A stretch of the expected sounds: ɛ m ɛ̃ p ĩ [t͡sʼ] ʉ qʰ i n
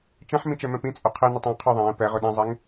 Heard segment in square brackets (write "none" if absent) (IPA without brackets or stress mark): t͡sʼ